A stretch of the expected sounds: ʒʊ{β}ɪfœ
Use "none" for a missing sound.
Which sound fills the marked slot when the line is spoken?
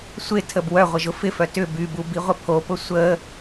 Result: f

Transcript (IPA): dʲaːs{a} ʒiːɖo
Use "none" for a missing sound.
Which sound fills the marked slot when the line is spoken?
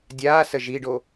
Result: ə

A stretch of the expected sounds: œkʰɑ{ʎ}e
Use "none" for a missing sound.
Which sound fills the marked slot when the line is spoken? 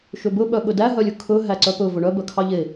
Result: ʎ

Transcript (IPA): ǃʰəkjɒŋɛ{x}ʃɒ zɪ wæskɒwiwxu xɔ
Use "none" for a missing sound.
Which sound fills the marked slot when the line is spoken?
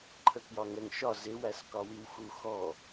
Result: ŋ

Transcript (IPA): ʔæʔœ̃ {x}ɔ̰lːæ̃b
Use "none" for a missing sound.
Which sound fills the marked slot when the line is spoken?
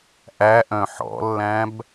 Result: ħ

